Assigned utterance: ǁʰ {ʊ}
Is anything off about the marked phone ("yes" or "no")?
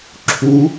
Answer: yes